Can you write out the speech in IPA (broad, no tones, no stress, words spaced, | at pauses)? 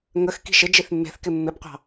ŋəx ki̤ʃɪ d͡ʒiθmːe̤θkɪ mːɪbqʷɑ̤